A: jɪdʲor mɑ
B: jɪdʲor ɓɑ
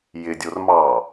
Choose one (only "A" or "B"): A